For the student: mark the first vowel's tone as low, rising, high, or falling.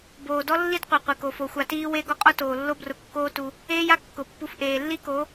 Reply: low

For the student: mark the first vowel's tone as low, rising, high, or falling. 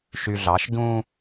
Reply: low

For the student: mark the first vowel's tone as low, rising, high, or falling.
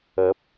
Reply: rising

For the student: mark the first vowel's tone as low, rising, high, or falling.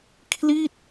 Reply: falling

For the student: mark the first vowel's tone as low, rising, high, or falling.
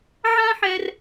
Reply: high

